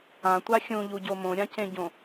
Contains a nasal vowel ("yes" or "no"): yes